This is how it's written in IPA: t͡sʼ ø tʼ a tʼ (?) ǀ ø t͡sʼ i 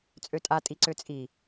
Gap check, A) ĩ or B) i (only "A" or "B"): B